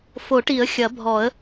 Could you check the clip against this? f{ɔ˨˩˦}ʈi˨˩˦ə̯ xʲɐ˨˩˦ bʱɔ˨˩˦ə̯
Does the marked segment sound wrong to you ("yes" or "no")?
yes